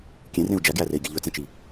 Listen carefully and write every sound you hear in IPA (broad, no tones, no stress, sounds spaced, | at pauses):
kʲ ẽ r ẽ u̯ d͡ʒ æ ɡ j æ r e i̯ ɡʲ ɛ ʎ ɵ t͡s ẽ t͡ʃ i